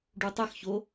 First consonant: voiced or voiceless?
voiced